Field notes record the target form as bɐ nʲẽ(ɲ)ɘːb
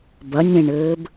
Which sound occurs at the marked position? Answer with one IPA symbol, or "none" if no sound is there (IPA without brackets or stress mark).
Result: ɳ